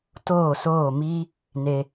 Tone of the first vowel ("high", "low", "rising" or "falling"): falling